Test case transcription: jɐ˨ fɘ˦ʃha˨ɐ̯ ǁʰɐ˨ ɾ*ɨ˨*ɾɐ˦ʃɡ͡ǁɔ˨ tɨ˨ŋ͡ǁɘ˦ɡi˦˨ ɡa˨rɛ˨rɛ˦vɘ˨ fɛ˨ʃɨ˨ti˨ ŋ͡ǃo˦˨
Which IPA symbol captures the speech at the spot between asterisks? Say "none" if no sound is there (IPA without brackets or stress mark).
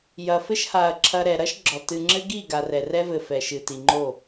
ɛ˨